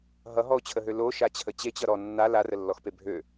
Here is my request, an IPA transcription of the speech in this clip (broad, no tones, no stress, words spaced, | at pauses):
ɦʌɦɔo̯t͡ɕʰəɦø loʃat͡ɕʰə t͡ɕet͡ɕʌ ɾɔ nːa larəlːɔxpe bʱø